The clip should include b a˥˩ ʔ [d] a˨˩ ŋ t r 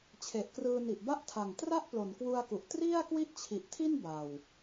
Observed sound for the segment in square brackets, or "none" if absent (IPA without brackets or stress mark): tʰ